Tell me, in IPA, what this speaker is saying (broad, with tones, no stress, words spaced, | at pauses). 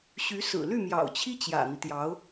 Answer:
ɕy˧˥ sɹ̩˨˩ ly˥˩mjɑ̰˨˩ʊ̯t͡ɕʰi˥ t͡ɕjä̰˨˩n̪i˦t̪jɑ˧˥ʊ̯